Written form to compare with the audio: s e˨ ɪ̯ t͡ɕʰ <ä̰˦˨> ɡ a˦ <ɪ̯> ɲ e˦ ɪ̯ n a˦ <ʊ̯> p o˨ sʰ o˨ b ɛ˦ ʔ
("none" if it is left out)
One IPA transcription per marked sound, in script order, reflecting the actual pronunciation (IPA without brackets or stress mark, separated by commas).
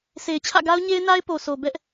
ä̰˦˨, ʊ̯, ɪ̯